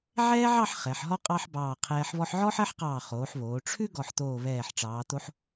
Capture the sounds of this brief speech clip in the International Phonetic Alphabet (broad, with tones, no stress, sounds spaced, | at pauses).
ʕ ɛː˥ ʕ ɑ˥˧ ħ χ ɛ˩˧ ħ ɦ ɔ˥ qʼ ɑ˥ ħ b ɑː˧˩ qʰ ɛː˧ ħ β ɔ˧ ħ ʕ ɔ˥ ħ ɜ˥ ħ q ɑː˧˩ χ oː˩˧ ħ β oː˩˧ ʈ͡ʂʰ ʉ˥ ɡ ɔ˧˩ ħ t̪ oː˧˩ β ɛː˧˩ ħ ʈ͡ʂ ɑː˩˧ t̪ o˧ ħ